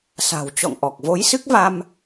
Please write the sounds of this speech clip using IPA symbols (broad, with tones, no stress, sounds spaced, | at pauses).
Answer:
s a̤˨˩ w t͡ɕ ɔ̰˧˨ ŋ ʔ ɔ˨˩ k̚ v o˨˦ j s ɨ˦˥ k̚ v a˧ m